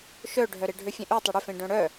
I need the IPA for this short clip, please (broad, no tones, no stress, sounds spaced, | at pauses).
ʃ œ ɖʱ œ ɾ e ɖʱ ø fʲ ẽ ʔ ø tˤ o ɽ ʏ f ẽ ɖ œ̃ ɽ œ